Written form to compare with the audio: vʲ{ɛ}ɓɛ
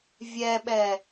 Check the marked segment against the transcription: correct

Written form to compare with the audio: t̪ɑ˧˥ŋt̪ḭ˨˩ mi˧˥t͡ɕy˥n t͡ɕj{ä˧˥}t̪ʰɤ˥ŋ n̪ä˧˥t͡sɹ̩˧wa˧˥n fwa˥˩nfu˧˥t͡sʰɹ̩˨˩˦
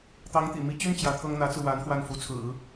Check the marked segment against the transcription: correct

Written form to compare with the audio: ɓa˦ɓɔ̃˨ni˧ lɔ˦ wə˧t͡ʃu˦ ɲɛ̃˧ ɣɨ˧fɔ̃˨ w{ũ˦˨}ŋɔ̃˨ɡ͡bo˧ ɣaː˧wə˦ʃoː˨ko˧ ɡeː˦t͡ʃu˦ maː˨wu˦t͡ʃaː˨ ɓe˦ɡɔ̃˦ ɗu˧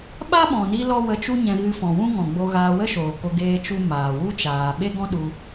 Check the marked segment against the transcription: incorrect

